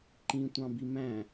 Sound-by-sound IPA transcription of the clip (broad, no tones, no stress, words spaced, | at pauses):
ǃĩtʷɑ̃bi mæ̃